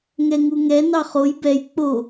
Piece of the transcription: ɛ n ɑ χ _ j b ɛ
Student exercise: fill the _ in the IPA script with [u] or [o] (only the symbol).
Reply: o